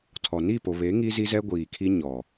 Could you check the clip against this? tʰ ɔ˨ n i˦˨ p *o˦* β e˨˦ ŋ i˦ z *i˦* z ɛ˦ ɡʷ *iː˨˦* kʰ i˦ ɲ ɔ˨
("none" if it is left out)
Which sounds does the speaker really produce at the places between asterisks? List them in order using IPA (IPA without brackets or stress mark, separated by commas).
o˨, i˦, iː˨